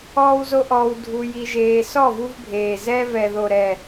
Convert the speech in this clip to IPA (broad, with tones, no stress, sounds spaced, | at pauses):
ɔː˦ w z o˦ ʔ ɔː˧ w dʱ u˧ j i˧ ʒ eː˧ s ɔ˦˨ v u˧ v bʱ eː˨ z ɛ˧ v ɛ˨ ð o˨ ɾ ɛ˨